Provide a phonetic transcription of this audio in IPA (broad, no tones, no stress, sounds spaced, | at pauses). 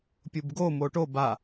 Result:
pʲ u b ɡ o m o ʈ o b a